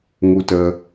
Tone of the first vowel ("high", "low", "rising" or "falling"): high